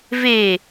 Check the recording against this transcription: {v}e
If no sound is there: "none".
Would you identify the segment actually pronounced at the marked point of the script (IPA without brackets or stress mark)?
v